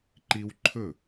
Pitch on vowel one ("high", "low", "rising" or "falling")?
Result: high